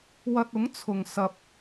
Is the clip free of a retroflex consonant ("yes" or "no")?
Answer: yes